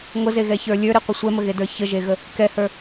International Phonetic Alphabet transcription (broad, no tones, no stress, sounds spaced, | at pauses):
ŋʷ ə z e ɣ ɛ ç ə˞ lʲ ə˞ ɾ e qʷ ə sʷ ɛ m ə ɣ e d ə˞ ç ə ʒ e ɣ ə | k ɛ h ə˞